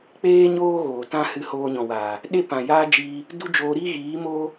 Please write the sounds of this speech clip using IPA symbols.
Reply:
k͡peː˦ ɲoː˦ɣoː˨ tã˦ hɨ˧hoː˧ɲɔ̃˨waː˨ | ɗe˦pã˨jaː˦d͡ʒiː˧ | du˦d͡ʒoː˧ɾiː˦ ɣiː˨˦ moː˦

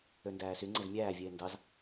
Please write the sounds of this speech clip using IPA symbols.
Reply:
øndæːsyŋ͡ǀez mʲæːvʲeː ndɑz

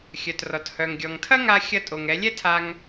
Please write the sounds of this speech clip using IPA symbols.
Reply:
xʲœ˩trɔ˩t hœ˩ŋ ɡʲɔ˩ŋtʰɐ˥ŋa˧ xʲɐ˧tʼo˩ŋ ɛ˩˧ lʲɛ˥tʰa˧ŋ

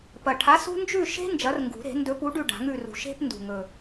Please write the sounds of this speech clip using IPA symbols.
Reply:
pɐ˨˩ʈʰa˨˥sṳ˦ nd͡ʒʉ˦˨ʃe̤˦ nd͡ʒɐ˨˥rŋɡṳ˨˩˦ɾe̤˨˩˦ ndɵ˨˥pu˨˥ɖʉ˦˨ ɖa̤˨˩˦ŋʉ˦˨rṳ˨˩˦ ʃe̤˦p ndṳ˨˩ŋɵ˨˩

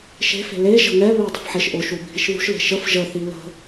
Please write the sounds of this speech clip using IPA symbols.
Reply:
ʃe̤fe̤ le ʒə̤ŋɛβɛ dˤə̤fħeʃʔʊʃu bʱiʃðṳʃle̤ ʃəf ʒəθi lə̤

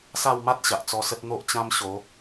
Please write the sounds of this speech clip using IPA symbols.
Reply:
sa˥˧wma˦t̚ ɕa˨ʔt͡sɔ˧sə˦t̚ n̪o˦ʔt͡ɕã˦mɕo˨˦

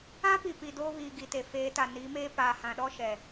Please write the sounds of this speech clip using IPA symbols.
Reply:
ã˦ pi˨ pi˨doː˦βiː˨ ɡi˨te˨ feː˨˦ta˨ niː˨˦meː˦ paː˨hã˨ɗɔ˦ ʃɛ˨

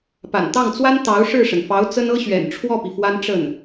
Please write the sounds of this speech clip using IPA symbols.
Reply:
pa̰˨˩nt̪ɑ˥˩ŋt͡swa˥n t̪ɑ˧˥ʊ̯ʂɻ̩˥˩ʂə˩nfɑ˧˥ʊ̯ t͡sə˥nɤ˥ɕɥɛ̰˨˩n ʈ͡ʂʰwɔ˥˩pi˩ fwa˥nʈ͡ʂə˥˩n

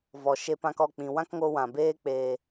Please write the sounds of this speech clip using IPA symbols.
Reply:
vɔ˨ʃe˧pã˧kɔ˦˨ k͡pĩ˨wã˦kŋo˧ wã˨beː˦ k͡peː˨

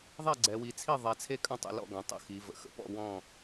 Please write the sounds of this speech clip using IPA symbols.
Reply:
ðˤɛ˥˩ɡ͡ǀɛ˩˧wi˩˧t͡sʰi˥˩ ðˤɛ˩˧t͡sʰe˥˩kʼɐ̃˥˩ tˤə̰˥˩lɔ̰˥˩ɡɐ̃˩˧ tˤə̰˥˩xi˩˧və̰˩˧ xə̰˥˩pɔ̰˥˩ wɔ̃˥˩

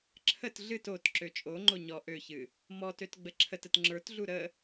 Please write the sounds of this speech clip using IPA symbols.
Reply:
ǁʰət ɮɨt ot ǁøt͡ʃʼoŋ͡ǃo ɲɔ ʔøçɨ | mɔtøt ɡ͡bəǁʰətət ŋ͡ǁə˞tɮu ɾə

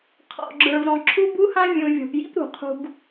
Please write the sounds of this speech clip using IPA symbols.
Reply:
qʰɔ̰˨ɡ͡ǁə˞˨v ɾɔ̃˨ǁʰu˦bu˦hã˦ vʲũ˨vʲɔ̤˨pjḭ˦p ɾṳ˨qʰṳ˦ɡ

